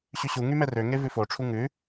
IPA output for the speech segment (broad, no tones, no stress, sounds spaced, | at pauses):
ɕ y ɕ u ŋ y m ɛ r ø ŋ e v ʉ f o ʈ͡ʂʰ u ŋ ʉ